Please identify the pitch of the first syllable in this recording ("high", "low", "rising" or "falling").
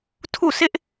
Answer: falling